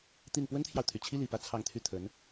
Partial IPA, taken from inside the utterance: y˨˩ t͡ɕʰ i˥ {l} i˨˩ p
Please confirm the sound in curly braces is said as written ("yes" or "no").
yes